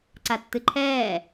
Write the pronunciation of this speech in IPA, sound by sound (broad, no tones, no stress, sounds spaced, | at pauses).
ǀ a tː ɨ ǃʰ ɛː